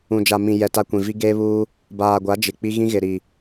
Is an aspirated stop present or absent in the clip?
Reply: absent